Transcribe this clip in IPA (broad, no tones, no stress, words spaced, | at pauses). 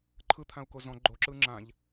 ǃʰɯt̪ʰãu̯ko zɔ̃ ɡ͡ǃoǁɯ ŋ͡ǁãʎ